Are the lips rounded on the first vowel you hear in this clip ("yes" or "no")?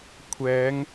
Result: no